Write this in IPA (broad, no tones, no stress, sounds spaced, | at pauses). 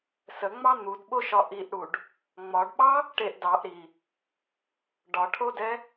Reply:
s ə ŋ͡m ɑ n̪ u d ɓ o ʃ ɒ ʔ i ʔ ɽ u ɖ | ŋ͡m ɒ ɖ ɓ ɑ | ʈ e ʔ d ɑ ʔ ɾ i | ɖ ɒ ʈʰ o d ɛ